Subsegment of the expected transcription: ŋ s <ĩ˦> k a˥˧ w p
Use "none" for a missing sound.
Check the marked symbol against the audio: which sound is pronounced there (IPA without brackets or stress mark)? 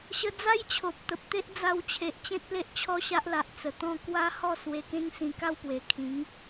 ĩ˧